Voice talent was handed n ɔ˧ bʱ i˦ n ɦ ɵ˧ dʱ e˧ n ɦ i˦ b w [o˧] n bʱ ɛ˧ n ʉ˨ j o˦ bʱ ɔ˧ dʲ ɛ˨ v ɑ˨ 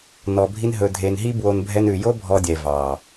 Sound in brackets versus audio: correct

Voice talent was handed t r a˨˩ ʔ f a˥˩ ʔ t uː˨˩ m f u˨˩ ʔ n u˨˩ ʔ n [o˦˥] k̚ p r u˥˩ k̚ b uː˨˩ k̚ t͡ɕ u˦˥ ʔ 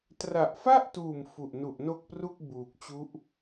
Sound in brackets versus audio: incorrect: o˥˩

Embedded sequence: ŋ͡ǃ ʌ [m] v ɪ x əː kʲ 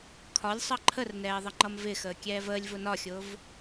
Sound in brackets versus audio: correct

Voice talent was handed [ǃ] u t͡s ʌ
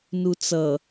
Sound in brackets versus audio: incorrect: n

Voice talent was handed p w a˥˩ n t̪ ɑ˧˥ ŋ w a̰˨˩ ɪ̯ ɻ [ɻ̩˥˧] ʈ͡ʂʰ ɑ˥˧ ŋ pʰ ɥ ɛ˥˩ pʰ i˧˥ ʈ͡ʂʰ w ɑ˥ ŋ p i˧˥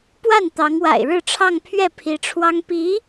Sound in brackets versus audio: correct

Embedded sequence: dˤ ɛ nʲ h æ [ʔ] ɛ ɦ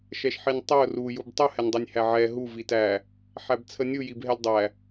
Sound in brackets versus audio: incorrect: ʕ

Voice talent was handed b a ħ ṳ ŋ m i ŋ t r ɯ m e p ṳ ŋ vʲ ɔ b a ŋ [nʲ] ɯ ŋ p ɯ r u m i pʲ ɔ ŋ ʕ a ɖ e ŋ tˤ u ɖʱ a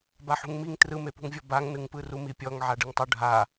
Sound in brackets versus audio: incorrect: n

